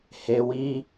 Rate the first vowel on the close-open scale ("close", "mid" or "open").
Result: mid